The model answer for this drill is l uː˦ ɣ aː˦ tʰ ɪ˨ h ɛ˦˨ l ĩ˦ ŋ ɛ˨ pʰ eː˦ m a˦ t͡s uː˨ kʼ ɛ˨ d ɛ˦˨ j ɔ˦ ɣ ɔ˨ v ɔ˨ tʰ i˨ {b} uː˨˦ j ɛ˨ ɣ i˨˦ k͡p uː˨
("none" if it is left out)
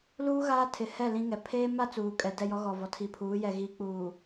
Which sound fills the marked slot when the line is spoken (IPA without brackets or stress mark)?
pʰ